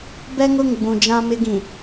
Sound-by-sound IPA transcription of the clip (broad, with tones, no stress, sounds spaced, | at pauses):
b ɛ˦ ŋ ʊ˦˨ ŋ ɡ͡b ũ˨ d͡ʒ ã˦ m ɪ˦ ɡ ĩ˨